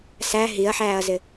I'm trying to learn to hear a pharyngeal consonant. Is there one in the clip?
yes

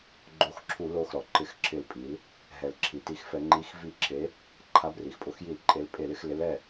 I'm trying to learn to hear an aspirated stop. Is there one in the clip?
yes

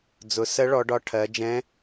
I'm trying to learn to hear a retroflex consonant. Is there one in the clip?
yes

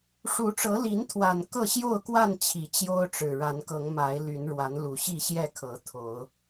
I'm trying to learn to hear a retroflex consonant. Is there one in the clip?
yes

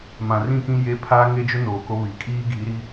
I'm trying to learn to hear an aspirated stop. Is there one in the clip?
yes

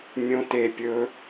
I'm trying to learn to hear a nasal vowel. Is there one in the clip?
yes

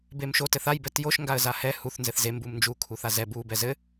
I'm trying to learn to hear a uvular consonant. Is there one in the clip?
no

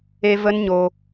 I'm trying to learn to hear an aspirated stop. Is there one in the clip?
no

